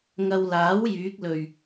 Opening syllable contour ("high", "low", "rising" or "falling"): low